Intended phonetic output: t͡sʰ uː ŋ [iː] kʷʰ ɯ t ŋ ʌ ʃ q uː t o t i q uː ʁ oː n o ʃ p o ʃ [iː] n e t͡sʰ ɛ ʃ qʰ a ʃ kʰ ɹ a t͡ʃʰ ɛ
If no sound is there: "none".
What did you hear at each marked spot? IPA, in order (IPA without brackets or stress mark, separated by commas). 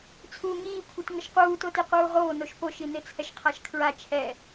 iː, i